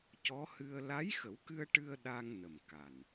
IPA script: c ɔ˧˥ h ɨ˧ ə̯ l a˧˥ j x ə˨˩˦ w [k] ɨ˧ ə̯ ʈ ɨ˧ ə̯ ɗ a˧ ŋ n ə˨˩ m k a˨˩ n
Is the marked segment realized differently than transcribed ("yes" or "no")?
no